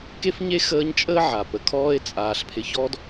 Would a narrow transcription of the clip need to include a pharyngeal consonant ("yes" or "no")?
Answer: yes